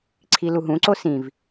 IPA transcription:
ǀʰ i l u ɦ ũ ǀ o s ĩ v

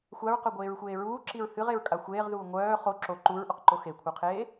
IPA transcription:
xʷ a ɹ q œ ɡʷ eː ɹ xʷ eː ɹ uː ǁ i ɹ h ɨ ʁ e ɹ kʼ a xʷ eː ʁ ð uː ŋʷ œː χ o ǁ o ǃ u ɹ ʔ o q ǃ o x e kʷʰ œ qʰ eː

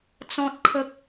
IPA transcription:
t͡s ɔ̃˦ t̚ kʰ ə˦ k̚

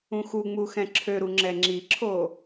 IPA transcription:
ũ x u ŋ͡m u x ɛ̃ ǁʰ ø ɾ u ŋ͡ǁ ɛ ŋ͡ǁ i ǁʰ o

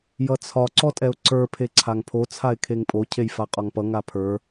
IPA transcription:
j ʌ t͡sʰ ɒ ǀ ɔ tʼ ɛ ʊ̯ ǀ ə˞ pʰ e ǀʰ a ŋ pʰ o t͡sʰ a ɪ̯ kʰ e ŋ pʼ o cʰ e j f a qʼ ɒ ŋ p ʌ ŋ a pʰ ə˞

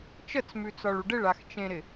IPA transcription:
t͡ʃ ə t͡s m ʉ t͡s ɒ ɭ u ɖ ɪ ɭ a x t͡ʃ ẽ ɾ ɪ

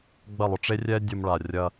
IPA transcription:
ɡ͡b ɐ˥˩ lˠ ʊ˧ ʈ͡ʂ e˥ rʲ ɛ˥ dʲ ʊ˧ m ɭ a˩ rʲ ɐ˧

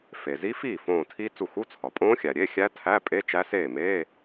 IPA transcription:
f e˩ z i˦˥ f iː˥˩ f õː˧˩ tʰ i˦˥ t͡s u˧˩ x u˧˥˧ t͡sʰ ɒ˩ pʼ õː˦˥ xʲ æ˩ ɾʲ e˧˥˧ xʲ æ˦˥ tʰ æ˧˥˧ pʼ e˧˥˧ t͡ʃ æ˦˥ s eː˥˩ m eː˧˥˧

